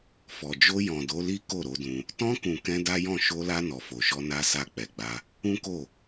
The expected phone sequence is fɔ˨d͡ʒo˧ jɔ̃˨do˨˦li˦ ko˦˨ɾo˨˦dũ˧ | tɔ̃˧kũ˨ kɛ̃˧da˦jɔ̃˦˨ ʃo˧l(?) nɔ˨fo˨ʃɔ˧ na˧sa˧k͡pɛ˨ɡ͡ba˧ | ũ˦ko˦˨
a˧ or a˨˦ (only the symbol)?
a˧